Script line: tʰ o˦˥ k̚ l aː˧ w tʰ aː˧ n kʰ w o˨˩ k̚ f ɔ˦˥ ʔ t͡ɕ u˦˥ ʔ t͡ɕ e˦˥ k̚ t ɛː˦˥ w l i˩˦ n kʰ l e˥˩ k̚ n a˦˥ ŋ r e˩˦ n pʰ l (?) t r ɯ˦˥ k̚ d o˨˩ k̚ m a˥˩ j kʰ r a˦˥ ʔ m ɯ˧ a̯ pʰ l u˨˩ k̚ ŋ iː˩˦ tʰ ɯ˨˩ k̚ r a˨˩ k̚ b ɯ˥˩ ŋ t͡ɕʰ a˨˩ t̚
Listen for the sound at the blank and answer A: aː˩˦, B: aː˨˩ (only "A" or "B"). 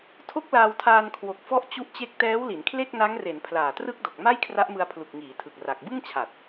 B